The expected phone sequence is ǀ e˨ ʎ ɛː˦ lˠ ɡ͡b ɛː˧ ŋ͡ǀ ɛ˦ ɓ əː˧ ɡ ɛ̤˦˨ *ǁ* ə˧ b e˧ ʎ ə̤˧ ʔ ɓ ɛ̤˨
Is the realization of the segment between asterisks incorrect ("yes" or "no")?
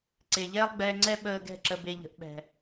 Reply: no